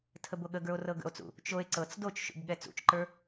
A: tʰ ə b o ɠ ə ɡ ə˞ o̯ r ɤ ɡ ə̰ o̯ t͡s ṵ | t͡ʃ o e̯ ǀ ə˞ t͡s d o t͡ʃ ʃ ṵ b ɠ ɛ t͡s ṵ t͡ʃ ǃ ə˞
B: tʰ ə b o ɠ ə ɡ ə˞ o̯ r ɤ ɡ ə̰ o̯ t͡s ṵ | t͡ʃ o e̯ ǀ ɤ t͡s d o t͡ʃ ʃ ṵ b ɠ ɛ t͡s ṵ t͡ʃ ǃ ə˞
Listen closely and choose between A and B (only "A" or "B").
B